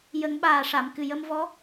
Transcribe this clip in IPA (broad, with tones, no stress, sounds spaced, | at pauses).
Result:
j ə˨˩˦ ŋ ɓ aː˨˩ ʂ a˨˩˨ m k ɨ˨˩ j ə˧ m v ɔ˧˥